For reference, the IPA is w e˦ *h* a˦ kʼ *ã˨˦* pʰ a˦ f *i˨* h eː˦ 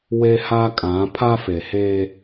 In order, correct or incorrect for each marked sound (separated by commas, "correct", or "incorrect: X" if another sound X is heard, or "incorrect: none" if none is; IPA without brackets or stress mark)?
correct, correct, incorrect: e˨